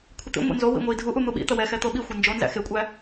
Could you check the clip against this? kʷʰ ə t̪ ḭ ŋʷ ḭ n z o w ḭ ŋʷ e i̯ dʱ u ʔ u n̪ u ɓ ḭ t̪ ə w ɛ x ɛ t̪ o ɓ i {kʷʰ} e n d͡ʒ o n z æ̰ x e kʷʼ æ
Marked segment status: incorrect: xʷ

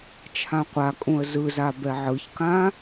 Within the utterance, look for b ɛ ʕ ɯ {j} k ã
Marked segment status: incorrect: ç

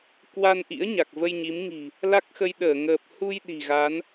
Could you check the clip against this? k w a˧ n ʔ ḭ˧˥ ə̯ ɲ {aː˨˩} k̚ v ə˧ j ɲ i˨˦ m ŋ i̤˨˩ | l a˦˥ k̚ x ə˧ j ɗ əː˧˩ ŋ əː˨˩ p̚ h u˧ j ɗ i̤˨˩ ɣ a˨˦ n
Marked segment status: incorrect: a˨˩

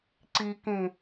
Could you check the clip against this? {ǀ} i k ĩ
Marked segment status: correct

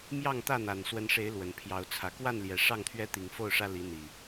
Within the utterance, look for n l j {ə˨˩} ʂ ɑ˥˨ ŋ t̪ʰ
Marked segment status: incorrect: ɛ˨˩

